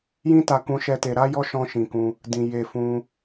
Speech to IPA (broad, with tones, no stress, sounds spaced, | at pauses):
j ĩ˦ t a˧ k ũ˦ ʃ ɛ˦ t e˧ ɾ a˦ j ɔ˦ ʃ ɔ̃˦ ʃ ĩ˧ k ũ˧ | d ĩ˧ j e˧ f ũ˧